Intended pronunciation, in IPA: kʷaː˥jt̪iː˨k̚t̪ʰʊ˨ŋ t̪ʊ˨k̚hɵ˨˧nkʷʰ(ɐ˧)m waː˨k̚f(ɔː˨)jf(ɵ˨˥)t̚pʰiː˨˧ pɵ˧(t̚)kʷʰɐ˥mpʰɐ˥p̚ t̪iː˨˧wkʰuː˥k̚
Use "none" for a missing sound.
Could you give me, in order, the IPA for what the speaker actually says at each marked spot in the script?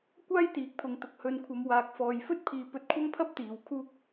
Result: ɐ˨˧, ɔː˨, ɵ˥, t̚

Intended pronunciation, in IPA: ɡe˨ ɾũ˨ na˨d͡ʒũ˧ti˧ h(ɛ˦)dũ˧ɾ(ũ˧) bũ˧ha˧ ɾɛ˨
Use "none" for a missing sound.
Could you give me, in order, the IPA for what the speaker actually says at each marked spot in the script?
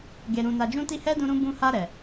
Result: ɛ˦, ũ˧

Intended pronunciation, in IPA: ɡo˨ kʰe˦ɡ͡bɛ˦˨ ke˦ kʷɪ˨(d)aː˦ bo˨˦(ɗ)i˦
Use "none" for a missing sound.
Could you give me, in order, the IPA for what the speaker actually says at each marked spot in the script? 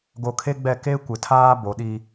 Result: tʰ, ɗ

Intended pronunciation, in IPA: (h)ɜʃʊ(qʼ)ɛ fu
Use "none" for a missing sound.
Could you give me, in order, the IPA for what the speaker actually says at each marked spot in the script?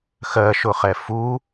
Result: x, χ

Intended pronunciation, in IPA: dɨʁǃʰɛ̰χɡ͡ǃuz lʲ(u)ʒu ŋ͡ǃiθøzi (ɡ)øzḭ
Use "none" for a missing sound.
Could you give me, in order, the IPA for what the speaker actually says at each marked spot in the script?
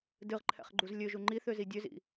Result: ø, dʲ

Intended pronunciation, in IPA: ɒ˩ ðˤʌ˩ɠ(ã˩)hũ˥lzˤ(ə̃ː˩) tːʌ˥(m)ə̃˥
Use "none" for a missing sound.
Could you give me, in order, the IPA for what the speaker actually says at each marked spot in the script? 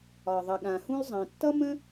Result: ã˩, ə̃ː˩, m

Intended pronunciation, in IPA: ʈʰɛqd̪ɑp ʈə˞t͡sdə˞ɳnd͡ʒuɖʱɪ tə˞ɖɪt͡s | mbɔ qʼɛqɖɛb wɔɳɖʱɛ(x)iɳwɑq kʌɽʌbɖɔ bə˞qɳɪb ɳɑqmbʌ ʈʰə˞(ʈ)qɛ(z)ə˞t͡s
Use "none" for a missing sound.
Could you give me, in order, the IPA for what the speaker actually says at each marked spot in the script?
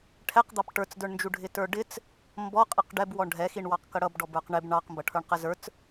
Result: x, ɳ, z

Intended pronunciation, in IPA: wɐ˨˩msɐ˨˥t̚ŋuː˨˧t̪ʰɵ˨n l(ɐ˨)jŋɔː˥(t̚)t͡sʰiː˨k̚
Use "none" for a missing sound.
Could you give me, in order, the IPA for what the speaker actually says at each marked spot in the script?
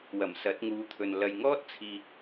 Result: ɐ˨, t̚

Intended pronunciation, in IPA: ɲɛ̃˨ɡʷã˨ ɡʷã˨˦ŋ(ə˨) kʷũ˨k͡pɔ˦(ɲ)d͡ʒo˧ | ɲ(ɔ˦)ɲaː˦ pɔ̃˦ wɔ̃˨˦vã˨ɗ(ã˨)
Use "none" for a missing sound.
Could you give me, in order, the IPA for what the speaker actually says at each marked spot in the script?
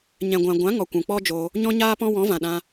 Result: ɔ˨, none, ɔ̃˦, ã˧

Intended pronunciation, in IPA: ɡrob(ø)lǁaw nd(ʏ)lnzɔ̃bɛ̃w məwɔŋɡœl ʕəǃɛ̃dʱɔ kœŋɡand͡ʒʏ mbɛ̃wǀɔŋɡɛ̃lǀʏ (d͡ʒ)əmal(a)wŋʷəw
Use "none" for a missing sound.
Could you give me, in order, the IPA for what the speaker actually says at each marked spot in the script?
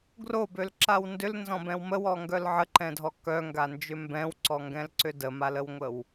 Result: ø, ʏ, d, ə

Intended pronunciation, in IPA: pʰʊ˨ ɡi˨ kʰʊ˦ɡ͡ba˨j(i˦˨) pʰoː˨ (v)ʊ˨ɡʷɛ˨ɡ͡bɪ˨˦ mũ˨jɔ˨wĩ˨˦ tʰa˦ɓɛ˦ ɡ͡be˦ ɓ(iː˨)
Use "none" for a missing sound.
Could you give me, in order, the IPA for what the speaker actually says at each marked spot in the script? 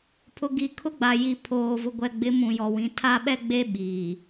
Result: i˨, v, iː˨

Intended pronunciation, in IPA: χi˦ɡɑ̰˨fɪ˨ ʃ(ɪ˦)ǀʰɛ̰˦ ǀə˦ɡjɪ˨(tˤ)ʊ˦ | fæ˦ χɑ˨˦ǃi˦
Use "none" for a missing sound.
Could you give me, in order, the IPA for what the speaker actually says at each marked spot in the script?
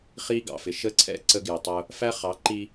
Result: ə˦, tˤ

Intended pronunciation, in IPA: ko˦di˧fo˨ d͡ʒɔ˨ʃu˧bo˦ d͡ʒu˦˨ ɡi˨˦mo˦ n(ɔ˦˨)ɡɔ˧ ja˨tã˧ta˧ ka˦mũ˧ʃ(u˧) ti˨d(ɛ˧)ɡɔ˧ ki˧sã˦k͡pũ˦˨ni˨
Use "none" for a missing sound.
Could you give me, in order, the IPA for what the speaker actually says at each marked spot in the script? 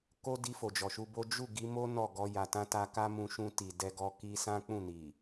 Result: ɔ˦˨, ũ˧, ɛ˧

